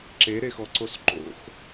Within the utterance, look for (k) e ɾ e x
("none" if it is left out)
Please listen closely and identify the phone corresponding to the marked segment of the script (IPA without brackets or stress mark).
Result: ǁ